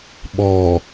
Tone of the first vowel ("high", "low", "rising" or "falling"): low